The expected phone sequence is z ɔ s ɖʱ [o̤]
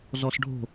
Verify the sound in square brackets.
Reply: correct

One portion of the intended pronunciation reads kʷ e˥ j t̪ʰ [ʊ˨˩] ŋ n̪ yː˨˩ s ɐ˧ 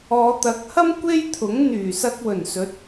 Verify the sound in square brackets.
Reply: incorrect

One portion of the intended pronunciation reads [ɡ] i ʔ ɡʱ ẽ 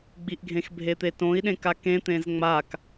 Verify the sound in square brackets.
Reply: incorrect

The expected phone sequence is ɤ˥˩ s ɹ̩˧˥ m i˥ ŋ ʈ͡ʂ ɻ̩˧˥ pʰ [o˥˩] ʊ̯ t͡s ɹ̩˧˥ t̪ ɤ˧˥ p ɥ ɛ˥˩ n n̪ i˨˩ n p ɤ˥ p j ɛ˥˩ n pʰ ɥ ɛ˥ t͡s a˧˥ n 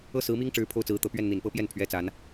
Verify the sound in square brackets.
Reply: correct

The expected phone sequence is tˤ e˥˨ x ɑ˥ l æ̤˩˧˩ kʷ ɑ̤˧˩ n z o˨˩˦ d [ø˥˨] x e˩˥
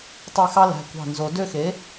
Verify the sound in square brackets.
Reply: correct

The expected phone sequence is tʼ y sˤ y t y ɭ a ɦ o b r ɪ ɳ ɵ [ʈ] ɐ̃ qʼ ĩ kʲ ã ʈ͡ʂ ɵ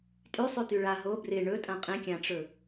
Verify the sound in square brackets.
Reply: incorrect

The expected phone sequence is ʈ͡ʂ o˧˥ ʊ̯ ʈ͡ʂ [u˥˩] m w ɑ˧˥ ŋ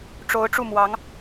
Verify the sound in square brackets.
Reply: correct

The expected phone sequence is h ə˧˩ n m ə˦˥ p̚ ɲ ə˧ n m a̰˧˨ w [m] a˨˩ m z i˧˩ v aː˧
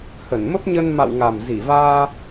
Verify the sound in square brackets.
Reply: incorrect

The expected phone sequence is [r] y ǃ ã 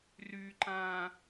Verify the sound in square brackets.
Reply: correct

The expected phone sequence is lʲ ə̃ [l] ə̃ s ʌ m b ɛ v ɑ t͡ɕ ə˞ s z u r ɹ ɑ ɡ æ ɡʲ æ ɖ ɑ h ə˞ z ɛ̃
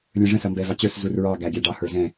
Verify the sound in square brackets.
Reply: incorrect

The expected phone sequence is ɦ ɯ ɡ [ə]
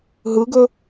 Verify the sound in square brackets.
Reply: incorrect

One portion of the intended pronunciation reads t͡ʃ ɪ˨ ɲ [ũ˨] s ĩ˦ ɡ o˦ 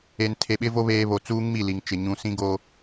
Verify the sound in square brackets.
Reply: correct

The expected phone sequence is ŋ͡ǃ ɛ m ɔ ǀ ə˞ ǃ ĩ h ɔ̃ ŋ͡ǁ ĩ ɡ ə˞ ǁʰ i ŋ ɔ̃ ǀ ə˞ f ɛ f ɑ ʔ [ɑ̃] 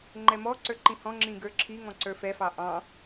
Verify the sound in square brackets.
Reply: correct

